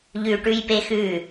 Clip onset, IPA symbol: ʎ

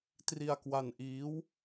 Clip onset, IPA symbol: t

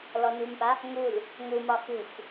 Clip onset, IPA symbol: l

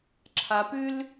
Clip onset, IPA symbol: ǁʰ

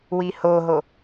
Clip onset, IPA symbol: w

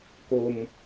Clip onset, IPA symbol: k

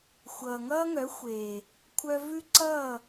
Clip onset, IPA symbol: xʷ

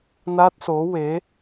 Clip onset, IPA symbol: n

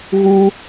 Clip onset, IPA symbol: ɣ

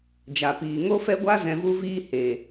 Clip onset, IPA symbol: d͡ʒ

